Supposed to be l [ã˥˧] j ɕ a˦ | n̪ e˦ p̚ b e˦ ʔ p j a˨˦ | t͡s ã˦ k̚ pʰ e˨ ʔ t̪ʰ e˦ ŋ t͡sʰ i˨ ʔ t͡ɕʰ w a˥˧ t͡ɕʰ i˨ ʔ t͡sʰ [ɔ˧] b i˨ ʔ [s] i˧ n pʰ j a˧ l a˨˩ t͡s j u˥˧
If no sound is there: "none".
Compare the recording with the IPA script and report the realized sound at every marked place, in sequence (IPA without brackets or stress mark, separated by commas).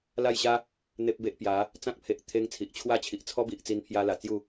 a˥˧, ɔ˦, t͡s